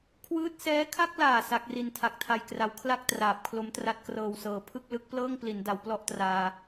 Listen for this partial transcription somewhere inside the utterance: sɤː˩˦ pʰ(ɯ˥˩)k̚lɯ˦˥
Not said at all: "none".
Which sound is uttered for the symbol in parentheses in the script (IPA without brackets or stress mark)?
ɯ˥˩